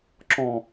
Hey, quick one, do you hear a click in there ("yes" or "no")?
yes